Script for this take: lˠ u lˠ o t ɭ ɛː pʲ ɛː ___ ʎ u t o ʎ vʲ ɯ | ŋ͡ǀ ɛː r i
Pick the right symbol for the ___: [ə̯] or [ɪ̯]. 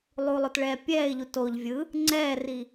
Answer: ɪ̯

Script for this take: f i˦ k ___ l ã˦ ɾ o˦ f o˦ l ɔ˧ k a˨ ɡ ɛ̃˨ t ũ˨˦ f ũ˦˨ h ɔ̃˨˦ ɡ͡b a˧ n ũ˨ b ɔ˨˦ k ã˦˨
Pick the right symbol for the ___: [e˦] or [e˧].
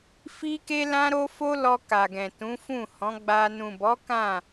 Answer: e˦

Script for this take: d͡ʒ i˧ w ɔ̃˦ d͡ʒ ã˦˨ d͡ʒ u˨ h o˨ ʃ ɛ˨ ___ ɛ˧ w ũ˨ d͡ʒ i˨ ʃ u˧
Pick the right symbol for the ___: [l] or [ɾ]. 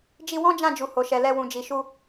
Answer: l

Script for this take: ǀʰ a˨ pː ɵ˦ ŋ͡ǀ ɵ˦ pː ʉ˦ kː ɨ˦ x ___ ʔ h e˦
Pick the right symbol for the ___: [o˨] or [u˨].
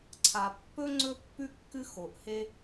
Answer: o˨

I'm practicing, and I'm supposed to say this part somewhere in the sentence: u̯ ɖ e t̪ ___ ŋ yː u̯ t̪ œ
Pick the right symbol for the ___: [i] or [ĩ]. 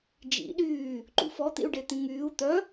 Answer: ĩ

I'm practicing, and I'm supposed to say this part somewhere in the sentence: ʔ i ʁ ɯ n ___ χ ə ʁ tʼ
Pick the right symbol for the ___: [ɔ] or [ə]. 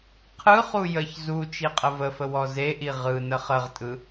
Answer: ə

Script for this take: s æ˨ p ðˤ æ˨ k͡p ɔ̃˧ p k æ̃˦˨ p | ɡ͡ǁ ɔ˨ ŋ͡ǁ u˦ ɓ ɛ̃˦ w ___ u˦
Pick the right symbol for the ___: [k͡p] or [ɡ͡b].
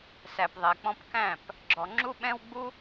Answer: ɡ͡b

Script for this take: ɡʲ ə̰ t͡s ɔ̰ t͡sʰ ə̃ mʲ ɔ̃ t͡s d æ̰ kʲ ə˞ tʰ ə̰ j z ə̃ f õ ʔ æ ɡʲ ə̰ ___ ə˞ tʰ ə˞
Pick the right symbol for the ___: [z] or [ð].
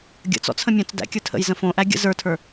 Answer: z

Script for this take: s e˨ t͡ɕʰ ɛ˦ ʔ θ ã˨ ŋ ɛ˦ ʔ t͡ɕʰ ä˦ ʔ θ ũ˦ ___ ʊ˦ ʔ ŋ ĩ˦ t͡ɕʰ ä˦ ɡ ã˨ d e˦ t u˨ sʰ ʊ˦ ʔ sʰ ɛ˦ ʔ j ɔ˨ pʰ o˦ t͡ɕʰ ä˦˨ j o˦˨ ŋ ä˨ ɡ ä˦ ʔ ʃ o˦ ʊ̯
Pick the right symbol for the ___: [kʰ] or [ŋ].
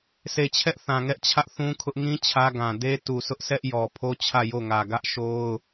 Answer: kʰ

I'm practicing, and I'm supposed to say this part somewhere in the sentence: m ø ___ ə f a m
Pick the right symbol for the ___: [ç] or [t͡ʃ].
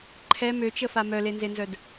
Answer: t͡ʃ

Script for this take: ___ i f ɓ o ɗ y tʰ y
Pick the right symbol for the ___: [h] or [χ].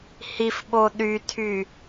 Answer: h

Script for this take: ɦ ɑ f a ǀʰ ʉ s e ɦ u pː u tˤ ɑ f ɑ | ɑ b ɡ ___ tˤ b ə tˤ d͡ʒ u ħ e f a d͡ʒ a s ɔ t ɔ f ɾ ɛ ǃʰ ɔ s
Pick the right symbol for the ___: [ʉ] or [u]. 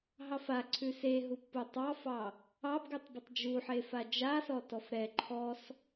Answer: ʉ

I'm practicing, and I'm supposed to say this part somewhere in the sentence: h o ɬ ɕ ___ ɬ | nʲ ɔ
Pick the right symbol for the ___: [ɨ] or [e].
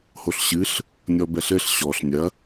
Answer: ɨ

